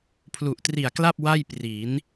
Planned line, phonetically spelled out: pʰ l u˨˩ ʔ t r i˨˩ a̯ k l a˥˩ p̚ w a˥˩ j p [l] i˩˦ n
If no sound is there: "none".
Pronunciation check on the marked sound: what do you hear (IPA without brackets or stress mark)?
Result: r